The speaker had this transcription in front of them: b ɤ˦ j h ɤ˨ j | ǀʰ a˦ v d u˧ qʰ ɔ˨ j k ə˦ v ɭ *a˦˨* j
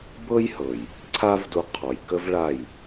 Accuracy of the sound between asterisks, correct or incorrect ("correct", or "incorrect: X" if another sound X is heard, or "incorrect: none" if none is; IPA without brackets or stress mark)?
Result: correct